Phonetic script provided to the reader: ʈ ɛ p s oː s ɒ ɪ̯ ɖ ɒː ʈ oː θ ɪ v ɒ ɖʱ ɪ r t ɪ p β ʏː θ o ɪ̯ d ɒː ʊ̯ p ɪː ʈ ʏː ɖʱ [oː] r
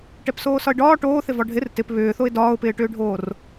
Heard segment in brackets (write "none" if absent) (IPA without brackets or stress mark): oː